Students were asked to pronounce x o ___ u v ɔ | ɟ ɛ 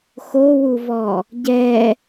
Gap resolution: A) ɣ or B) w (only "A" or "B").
B